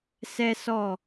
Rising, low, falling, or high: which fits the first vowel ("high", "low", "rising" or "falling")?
high